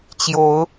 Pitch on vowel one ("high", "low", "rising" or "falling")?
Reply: rising